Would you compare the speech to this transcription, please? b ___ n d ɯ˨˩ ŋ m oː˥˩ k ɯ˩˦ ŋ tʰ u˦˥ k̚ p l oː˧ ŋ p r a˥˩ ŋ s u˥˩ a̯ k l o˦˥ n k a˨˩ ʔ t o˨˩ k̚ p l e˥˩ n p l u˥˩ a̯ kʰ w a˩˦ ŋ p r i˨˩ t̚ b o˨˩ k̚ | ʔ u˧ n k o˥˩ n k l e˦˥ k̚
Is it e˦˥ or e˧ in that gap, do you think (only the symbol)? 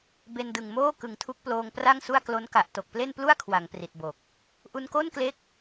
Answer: e˧